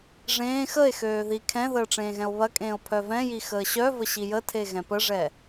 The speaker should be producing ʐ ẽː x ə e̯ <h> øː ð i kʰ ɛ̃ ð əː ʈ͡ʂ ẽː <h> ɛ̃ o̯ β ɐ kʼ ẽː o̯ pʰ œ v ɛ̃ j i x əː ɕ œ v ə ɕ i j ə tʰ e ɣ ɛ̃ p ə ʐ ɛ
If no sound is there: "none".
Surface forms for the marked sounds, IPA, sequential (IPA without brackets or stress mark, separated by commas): x, ɣ